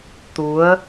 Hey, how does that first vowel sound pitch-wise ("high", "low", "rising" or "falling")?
rising